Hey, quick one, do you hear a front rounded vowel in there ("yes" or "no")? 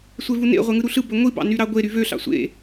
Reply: yes